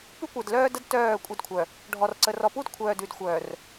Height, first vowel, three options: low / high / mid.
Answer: high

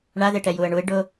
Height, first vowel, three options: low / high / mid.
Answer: low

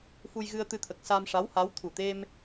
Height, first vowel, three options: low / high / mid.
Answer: high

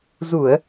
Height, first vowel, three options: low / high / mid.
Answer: high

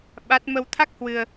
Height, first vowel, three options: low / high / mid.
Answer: low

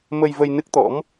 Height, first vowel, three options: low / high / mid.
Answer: mid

